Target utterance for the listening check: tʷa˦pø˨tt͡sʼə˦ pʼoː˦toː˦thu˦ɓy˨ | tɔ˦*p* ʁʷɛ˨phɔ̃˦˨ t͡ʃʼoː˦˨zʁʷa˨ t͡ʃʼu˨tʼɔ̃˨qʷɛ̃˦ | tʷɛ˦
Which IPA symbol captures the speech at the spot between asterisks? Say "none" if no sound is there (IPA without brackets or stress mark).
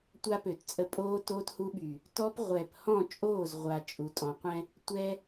p